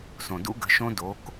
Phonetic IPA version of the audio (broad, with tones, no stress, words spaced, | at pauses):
sõ˩dṵ˦˥ɡə̤˩˥ʃõ˦˥ do˩˧k